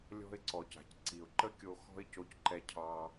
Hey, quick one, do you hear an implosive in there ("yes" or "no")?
no